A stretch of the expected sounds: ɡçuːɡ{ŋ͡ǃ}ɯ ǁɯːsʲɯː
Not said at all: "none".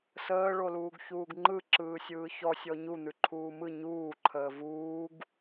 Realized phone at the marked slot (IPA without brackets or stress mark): ŋ͡ǃ